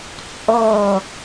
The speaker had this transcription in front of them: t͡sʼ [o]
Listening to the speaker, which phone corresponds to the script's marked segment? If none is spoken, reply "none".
o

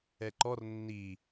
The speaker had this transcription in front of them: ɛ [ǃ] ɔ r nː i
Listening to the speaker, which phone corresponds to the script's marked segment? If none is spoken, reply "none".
ǃ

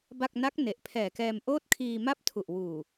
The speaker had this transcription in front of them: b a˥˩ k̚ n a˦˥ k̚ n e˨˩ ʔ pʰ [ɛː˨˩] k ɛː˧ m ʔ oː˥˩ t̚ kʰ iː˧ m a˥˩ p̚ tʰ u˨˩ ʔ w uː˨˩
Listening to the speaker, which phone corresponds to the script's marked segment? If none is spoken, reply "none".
ɛː˨˩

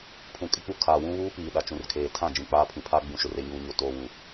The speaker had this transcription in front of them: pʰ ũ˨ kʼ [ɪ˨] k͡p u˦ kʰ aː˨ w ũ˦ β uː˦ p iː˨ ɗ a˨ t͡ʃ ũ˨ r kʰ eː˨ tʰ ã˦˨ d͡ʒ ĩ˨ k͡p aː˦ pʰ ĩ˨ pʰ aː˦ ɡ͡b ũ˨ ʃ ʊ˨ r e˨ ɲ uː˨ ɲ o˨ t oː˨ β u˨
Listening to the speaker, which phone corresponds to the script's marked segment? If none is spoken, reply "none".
ɪ˦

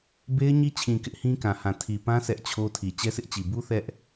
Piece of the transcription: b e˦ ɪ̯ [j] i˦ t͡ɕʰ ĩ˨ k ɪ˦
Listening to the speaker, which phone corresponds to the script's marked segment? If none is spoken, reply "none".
ɲ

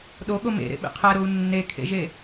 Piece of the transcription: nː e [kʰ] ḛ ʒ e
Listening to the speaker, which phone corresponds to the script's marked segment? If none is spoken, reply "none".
kʰ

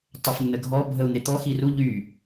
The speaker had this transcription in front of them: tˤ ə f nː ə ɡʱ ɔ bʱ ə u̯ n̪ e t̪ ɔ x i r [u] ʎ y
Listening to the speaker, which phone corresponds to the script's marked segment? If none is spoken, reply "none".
u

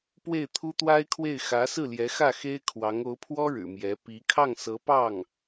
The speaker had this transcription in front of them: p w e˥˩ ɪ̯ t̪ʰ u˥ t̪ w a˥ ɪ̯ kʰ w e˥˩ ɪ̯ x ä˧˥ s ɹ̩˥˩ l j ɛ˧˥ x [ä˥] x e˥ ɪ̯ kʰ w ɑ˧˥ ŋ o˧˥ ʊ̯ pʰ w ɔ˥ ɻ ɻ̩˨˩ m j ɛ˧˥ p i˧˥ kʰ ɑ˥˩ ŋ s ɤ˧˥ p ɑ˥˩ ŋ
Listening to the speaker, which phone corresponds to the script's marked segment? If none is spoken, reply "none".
ä˥˩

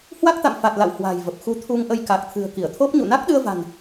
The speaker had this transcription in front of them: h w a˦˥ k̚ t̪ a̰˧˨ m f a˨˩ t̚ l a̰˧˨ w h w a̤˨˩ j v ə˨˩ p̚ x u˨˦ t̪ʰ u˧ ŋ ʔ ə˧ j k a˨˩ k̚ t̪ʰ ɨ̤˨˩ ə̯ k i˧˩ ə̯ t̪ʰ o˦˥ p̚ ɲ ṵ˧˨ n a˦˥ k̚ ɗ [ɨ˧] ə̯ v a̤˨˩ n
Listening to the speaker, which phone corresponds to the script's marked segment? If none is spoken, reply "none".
ɨ˧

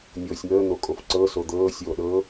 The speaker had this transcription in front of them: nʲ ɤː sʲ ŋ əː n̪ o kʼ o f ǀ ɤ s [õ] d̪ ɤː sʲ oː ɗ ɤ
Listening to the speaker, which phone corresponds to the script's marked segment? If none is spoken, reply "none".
o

